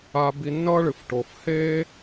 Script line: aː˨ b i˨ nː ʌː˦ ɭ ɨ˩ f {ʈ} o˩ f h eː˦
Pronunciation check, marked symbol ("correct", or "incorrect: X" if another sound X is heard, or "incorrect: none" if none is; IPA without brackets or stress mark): correct